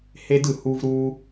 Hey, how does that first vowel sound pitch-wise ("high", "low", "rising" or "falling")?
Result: high